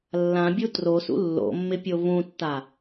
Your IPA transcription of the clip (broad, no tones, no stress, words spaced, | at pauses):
lːãbʲu trosṵ lːo̰mːɪpʲo vũtːa